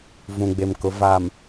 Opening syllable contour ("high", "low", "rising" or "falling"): low